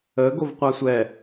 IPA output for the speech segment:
ə ɡ o v qʷ a sʷ ɛ

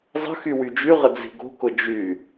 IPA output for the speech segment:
zˤ ə̤ x y w y d͡ʒ y ʁ ə d͡z i̤ ɡ o̤ k ʊ d͡ʒ y

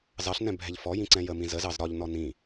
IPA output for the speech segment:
z ɑ ɬ n ɛ̃ bʱ ɛ ʎ f ɔ j ĩ ǀ ɛ̃ j ə m ĩ z ə z ɑ z ɾ ɒ ʎ n ɔ n ĩ

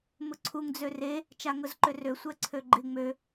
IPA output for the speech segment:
m ʊ ǀʰ u ŋ d͡z ø r e | t͡ʃ a ŋ ʊ z ǃ ʏ r ø sʷ ɛ ǀʰ ø ɡ͡ǃ ɪ ŋ͡m ø

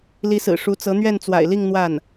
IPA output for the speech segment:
l i˧˥ s ɹ̩˨˩ ʂ u˧˥ t͡s ɤ˧˥ n̪ ɥ ɛ˥˩ n t͡s w a̰˨˩ ɪ̯ l i˥˧ ŋ n̪ w a˥˩ n

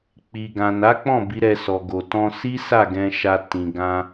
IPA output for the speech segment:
k͡p i˨ ɡ ã˨ n a˨˦ k͡p ɔ̃˦˨ b i˨˦ ɾ ɛ˧ s ɔ˨ ɡ o˨ t ɔ̃˧ s i˦ s a˦˨ ɡ ɛ̃˧ ʃ a˧ t ĩ˨ ɡ ã˧

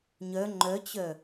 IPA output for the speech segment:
ɲ œ ŋ͡ǃ œ t͡ɕ œ

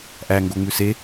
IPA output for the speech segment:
ʔ æ ŋ ɡ o ŋ͡m ʉ s e

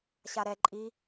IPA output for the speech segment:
ɕ a ɾ ɛ ǃʼ i

